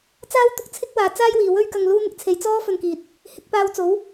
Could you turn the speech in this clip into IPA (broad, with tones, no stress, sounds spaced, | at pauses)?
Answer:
t͡s aː˥ w t̪ ʊ˧ k̚ t͡sʰ ɪ˥ k̚ w aː˨ t͡s aː˥ j w iː˨˩ w ɵ˥ ɥ k ɐ˧ ŋ l uː˥ n̪ ɪ˨ k̚ t͡sʰ e˨˧ j t͡s ɔː˥ f ɵ˧ n k iː˨ t̚ | h ɪ˨˥ k̚ p aː˧ w t͡s o˨˥ w